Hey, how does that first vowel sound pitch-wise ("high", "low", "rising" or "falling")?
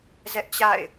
high